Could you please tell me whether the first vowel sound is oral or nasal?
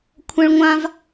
nasal